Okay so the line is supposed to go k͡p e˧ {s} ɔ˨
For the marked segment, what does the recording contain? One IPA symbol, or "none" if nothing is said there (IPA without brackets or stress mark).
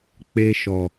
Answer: ʃ